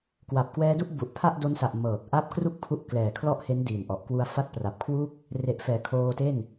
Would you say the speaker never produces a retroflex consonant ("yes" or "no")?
yes